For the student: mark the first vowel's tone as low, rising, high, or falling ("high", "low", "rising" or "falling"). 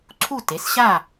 falling